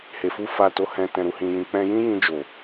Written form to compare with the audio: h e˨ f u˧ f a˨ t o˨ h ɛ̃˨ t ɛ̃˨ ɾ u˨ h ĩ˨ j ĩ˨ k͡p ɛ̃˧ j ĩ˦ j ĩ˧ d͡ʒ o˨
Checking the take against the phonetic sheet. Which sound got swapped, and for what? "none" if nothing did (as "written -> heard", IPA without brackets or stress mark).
none